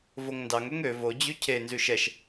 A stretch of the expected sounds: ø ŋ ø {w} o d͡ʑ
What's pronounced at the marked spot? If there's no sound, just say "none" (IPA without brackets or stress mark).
v